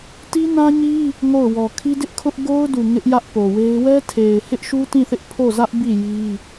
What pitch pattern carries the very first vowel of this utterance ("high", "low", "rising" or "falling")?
high